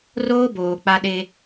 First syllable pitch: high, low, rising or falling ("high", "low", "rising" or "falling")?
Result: high